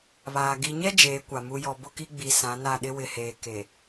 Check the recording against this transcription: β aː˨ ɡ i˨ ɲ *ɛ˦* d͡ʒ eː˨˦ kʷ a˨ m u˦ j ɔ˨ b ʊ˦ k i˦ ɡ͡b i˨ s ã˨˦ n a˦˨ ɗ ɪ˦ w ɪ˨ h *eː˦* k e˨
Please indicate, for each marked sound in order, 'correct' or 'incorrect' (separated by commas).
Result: correct, incorrect